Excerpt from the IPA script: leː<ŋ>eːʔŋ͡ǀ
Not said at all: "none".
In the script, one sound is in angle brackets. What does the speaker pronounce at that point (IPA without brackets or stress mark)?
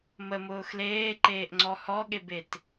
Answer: ǃ